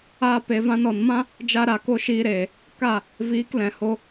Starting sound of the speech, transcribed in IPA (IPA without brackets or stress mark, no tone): aː